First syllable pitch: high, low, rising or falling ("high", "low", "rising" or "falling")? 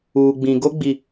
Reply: low